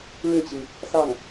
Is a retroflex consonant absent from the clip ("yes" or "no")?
no